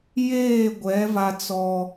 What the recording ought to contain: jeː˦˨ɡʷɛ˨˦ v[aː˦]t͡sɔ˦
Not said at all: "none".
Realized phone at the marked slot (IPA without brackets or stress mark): a˦